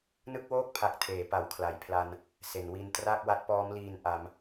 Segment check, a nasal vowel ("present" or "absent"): absent